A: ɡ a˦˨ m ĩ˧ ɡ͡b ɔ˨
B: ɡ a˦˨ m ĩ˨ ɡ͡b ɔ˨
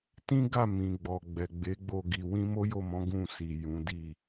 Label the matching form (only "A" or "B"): B